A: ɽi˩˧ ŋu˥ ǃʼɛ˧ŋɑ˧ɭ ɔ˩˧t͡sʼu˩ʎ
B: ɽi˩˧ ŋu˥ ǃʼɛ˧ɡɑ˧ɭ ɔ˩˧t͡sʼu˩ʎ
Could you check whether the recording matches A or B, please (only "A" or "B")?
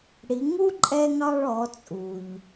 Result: A